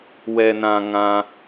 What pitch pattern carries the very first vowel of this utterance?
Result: low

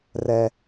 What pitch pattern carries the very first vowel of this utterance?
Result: low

